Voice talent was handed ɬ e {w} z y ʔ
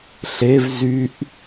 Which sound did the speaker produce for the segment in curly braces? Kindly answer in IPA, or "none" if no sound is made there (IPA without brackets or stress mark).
v